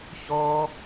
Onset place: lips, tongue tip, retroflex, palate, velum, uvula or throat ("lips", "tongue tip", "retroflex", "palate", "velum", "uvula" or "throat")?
palate